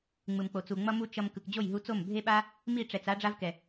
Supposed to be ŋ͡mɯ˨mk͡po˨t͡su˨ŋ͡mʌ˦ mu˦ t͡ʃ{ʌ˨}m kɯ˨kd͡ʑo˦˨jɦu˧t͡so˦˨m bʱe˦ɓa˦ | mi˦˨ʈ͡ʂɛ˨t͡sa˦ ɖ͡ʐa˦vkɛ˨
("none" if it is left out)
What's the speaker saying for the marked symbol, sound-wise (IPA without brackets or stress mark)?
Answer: ʌ˧